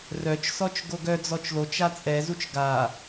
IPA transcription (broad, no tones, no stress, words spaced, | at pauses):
rœt͡ʃsɔt͡ʃ ɡoɡœd͡zɔt͡ʃ lot͡ʃa t͡sʼɛzut͡ʃ ɡa